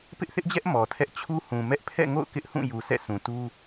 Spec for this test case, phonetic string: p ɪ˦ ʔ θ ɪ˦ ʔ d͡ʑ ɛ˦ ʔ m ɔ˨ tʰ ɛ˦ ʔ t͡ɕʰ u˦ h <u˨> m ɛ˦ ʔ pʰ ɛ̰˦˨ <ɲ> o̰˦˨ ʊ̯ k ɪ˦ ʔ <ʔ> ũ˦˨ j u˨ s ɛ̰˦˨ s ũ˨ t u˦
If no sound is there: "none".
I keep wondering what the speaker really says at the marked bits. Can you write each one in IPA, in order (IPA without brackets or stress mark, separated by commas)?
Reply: ũ˨, ŋ, h